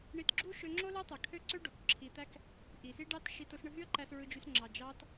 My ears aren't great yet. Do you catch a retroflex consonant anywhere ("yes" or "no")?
yes